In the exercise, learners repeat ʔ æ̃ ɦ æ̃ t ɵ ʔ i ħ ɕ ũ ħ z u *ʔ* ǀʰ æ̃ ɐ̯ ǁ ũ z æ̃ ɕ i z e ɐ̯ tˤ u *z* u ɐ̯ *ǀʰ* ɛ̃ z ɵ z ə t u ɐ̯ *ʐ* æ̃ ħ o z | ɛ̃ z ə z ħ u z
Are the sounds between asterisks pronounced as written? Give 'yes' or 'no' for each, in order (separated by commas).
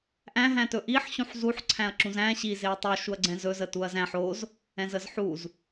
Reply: no, no, no, no